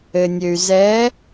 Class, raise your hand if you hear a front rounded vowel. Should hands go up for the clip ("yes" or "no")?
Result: yes